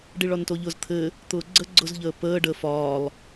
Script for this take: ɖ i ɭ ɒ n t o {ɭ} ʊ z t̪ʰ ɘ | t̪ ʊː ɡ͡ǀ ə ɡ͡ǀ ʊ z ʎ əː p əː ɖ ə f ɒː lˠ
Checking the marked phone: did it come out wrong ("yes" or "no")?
yes